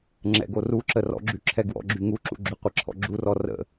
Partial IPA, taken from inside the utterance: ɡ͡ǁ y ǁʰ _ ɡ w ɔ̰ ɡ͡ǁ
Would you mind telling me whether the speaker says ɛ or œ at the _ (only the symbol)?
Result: ɛ